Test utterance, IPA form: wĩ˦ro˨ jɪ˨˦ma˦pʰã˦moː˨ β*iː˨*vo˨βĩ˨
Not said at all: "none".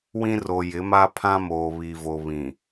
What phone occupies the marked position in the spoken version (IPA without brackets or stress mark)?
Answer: i˨